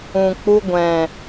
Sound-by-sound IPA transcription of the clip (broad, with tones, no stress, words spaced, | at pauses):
ũ˨k͡pu˧ ɡʷɛ̃˨